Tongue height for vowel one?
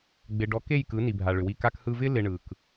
high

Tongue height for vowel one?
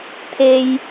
mid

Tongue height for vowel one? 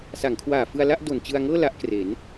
low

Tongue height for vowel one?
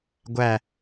low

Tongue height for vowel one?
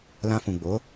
low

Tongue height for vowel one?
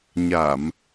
low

